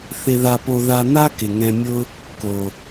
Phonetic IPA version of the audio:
θ ɪ˧ ð a˧ p o˧ ð a˧ n̪ a˥ k ɪ˩ ŋ ɛ̃˧ mʲ ʊ˥ | k o˩

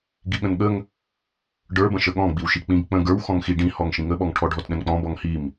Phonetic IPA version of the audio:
ɡ i ɠ ə̃ n ɠ ə ŋ | ɖ ə˞ b ə̃ ʃ ə ɠ ɔ̃ ɡ͡b i w ʃ i k͡p ĩ ɡ k͡p ə̃ ɡ ə˞ w x ɔ̃ ŋ x i ɖ ĩ h ɔ ŋ ʃ ĩ ŋ ə ɓ ɔ ŋ ʈʰ ɔ ɖʱ ɔ t ɗ ə̃ n k͡p ɔ̃ b ɔ ŋ h i m

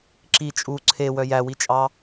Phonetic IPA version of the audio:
ǁ i t͡ʃʼ u ǀʰ e w œ j æ w i t͡ʃʼ ɑ

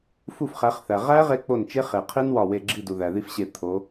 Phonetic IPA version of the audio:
f u˦˨ f χ æ˨˦ χ θ æ˨ ʁ æ˦˥ ʁ e˦˥ k͡p o˦˨ n t͡ʃ e˦˥ χ e˨ qʰ i˦˥ n w ɒ˦˨ w e˦˨ ɡ͡ǁ i˦˨ d u˨ ð æ˨ ð i˦˨ f ɕ e˦˨ t̪ʰ o˨˦

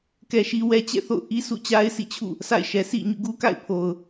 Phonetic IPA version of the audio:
k ɛ˦ ʃ i˦ w ɛ˦ t͡ɕ ɛ̰˦˨ θ o̰˦˨ ʊ̯ ʔ i˦ sʰ ṵ˦˨ t͡ɕ a˦ ɪ̯ sʰ ḭ˦˨ t͡ɕʰ ṵ˦˨ | sʰ a̰˦˨ ɪ̯ ʃ ɛ˨ sʰ ḭ˦˨ ɲ ṵ˦˨ ɡ u˦ k a̰˦˨ ɪ̯ pʰ o˨ ʊ̯

